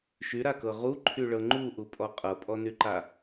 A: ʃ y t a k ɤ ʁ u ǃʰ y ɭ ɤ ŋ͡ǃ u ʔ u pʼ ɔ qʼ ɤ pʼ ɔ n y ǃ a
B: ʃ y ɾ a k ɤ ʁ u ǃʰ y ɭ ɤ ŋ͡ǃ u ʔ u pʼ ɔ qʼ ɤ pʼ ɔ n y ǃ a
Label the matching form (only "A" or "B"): B